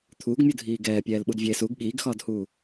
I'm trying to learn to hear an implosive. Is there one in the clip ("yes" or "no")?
yes